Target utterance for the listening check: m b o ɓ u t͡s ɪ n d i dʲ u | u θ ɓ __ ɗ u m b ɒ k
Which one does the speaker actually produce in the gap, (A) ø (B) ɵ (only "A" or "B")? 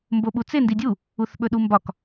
B